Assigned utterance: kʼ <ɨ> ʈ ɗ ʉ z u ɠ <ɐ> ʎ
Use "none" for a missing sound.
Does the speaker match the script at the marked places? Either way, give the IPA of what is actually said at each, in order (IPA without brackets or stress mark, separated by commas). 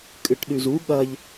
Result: ɨ, ɐ